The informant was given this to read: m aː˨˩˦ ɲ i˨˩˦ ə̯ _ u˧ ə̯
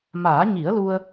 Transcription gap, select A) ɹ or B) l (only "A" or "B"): B